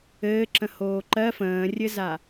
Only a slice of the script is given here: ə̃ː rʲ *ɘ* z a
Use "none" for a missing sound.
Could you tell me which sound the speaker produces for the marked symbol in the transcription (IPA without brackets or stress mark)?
ɘ